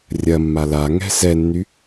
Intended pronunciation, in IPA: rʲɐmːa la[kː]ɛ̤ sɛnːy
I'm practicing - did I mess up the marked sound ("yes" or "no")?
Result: yes